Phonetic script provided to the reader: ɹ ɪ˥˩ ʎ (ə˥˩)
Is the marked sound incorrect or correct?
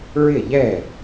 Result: incorrect: ɛ˥˩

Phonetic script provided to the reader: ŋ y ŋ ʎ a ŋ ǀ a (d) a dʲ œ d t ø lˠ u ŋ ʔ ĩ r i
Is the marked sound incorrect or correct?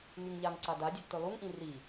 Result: correct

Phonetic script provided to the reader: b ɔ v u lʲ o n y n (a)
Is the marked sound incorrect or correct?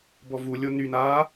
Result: incorrect: aː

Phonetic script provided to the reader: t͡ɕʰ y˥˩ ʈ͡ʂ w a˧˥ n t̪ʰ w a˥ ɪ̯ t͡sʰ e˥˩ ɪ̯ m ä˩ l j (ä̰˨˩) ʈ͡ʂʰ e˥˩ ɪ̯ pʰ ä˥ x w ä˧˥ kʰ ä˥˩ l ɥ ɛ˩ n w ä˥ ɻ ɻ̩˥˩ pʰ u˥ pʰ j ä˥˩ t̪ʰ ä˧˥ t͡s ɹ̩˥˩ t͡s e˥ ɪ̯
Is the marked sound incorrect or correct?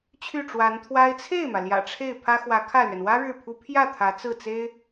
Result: correct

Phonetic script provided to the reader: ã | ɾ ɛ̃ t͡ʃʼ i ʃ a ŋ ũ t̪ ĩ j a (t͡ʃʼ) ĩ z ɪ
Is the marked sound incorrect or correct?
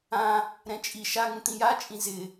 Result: correct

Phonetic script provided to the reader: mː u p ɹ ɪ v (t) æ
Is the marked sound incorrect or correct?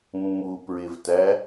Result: correct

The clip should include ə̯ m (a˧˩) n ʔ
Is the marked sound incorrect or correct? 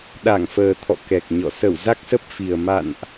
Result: incorrect: a̰˧˨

